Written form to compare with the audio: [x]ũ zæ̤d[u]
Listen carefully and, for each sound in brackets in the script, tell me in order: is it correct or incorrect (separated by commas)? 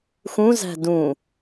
correct, incorrect